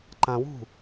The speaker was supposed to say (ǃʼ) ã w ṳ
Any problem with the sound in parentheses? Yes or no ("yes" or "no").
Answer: yes